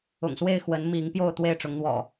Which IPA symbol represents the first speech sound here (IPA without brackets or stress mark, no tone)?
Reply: ʊ̰